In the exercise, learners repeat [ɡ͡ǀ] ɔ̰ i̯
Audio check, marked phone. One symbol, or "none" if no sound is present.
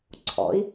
ǀʰ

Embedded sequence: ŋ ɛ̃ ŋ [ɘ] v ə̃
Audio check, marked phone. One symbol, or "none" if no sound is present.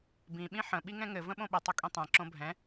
ɘ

